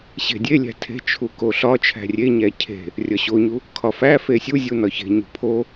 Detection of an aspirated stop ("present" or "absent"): present